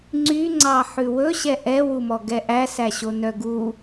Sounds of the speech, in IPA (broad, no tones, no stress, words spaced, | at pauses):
ŋ͡ǀyŋ͡ǀɑ ħʉwɵɕɛ ʔɛwumɔ ɡɛʔæsæɕo nœɡu